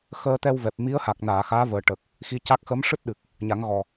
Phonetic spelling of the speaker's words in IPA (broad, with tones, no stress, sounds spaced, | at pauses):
x əː˧ t̪ ɛ˧ w v ɛ˨˩ p̚ m i˧˥ ə̯ h a˨˩ k̚ n aː˨˩˨ x aː˧˥ v əː˨˩ ʈ ə˨˩ k̚ | x i˧˥ c a˦˥ k̚ x ə˧˥ m ʂ ɨ˦˥ t̚ ɗ ɨ˨˩ k̚ | ɲ a˨˩˦ ŋ ɣ ɔ˨˩